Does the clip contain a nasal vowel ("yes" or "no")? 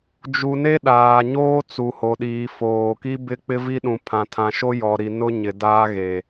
yes